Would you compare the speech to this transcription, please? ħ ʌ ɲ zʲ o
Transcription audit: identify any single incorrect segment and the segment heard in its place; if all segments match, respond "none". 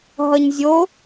ħ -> ɦ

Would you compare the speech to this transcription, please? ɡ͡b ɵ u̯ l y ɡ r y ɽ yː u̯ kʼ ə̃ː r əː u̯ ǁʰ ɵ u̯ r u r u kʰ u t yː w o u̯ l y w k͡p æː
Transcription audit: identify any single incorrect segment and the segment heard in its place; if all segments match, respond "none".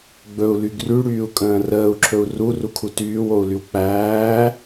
none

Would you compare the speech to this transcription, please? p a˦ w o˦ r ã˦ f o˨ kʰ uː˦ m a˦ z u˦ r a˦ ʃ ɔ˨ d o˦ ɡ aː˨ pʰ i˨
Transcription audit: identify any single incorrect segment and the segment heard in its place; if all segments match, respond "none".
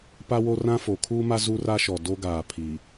none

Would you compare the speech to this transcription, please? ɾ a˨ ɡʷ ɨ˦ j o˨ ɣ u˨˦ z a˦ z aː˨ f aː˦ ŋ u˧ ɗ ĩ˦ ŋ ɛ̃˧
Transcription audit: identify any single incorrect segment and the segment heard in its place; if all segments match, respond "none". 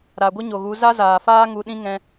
j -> ɲ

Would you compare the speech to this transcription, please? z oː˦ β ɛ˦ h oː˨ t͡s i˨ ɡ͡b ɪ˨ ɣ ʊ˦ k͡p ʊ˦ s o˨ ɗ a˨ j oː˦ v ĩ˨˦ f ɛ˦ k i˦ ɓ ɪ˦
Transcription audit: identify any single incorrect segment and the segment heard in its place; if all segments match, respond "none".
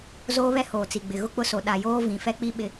k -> k͡p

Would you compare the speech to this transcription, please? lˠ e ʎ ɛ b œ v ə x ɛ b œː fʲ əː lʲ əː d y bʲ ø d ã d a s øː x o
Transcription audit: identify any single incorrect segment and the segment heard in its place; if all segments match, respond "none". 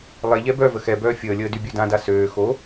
none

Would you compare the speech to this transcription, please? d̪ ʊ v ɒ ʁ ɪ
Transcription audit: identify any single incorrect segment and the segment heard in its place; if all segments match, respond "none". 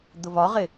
none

